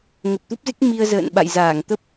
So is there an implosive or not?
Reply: yes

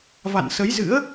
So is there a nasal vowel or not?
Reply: no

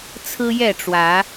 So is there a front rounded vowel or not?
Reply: no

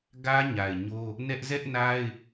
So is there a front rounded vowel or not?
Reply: no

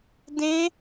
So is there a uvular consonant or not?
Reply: no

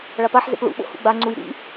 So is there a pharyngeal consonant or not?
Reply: yes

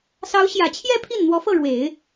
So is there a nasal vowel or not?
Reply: no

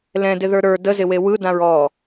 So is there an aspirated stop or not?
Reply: no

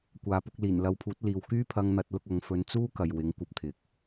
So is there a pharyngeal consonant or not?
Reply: no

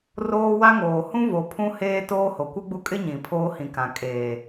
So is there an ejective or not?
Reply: yes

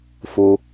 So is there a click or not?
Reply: no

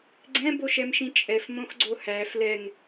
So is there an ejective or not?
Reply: yes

